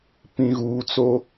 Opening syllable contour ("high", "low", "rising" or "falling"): low